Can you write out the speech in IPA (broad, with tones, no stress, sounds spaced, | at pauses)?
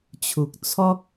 t͡ɕʰ u˨ k̚ t͡sʰ ɔ˦ k̚